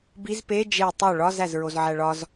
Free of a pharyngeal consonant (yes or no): no